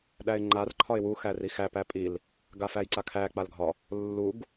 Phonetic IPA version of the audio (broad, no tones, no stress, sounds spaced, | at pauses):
ɗ æ ɪ̯ ŋ͡ǃ a r ǃʰ ɒ ɪ̯ w u x æ r i x æ p æ pʼ i l | ɡ a f æ j ǀ a kʰ æ k͡p a l ɡʱ ɒ | lː u ɡ